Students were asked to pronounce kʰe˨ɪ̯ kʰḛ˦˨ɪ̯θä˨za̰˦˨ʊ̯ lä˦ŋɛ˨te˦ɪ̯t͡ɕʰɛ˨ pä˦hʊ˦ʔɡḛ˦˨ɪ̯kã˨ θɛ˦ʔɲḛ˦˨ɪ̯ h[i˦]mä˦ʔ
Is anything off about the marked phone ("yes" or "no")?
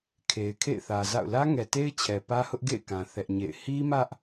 no